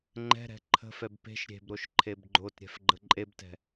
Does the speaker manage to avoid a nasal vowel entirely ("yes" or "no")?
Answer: yes